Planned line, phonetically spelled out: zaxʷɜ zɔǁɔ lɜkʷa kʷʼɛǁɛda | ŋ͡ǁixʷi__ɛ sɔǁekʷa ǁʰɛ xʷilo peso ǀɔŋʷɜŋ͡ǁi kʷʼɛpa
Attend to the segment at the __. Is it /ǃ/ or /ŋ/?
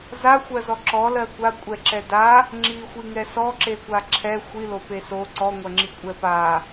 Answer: ŋ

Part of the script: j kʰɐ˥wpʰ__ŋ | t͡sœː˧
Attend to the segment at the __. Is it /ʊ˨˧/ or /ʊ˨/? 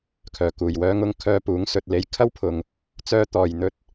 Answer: ʊ˨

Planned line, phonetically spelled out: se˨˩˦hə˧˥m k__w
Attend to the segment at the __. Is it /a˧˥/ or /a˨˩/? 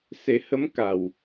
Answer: a˨˩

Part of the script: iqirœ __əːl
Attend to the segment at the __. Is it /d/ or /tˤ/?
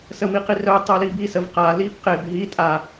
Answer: tˤ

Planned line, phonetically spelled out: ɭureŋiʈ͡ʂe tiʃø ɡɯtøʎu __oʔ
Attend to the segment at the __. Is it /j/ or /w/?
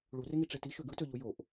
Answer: j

